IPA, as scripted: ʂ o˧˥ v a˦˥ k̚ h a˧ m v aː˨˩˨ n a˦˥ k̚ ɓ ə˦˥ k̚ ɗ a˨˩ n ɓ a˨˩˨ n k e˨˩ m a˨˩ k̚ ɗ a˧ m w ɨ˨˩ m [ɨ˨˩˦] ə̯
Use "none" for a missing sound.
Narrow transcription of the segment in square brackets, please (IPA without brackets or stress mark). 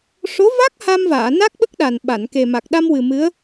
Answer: ɨ˧˥